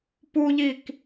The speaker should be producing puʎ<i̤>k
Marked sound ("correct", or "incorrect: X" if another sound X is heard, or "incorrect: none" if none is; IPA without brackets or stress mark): incorrect: i